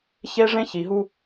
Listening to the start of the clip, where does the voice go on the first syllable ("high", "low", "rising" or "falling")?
high